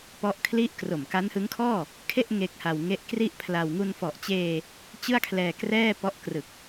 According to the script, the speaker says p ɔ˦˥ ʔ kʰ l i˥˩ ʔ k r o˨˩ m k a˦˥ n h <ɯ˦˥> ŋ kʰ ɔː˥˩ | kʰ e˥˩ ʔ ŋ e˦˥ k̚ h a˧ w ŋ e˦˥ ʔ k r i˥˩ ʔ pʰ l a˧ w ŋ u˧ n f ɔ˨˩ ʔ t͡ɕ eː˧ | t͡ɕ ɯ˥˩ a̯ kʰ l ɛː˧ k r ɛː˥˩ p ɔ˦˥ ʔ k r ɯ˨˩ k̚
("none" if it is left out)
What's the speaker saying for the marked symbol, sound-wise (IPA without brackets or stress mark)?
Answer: ɯ˦˥